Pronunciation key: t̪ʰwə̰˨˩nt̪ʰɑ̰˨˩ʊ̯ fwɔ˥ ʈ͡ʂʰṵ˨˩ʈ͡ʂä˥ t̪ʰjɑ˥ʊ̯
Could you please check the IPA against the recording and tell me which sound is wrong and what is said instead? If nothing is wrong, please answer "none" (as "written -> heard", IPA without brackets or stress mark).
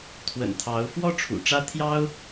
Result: ɑ̰˨˩ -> ɑ˧˥